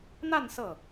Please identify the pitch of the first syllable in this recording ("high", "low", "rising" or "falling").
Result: falling